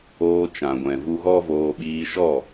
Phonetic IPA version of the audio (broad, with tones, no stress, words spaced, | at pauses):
oː˧t͡ʃã˨ ɡʷɛ̃˨vu˧ɣɔ˦voː˧ ɓiː˧ʃɔ˦˨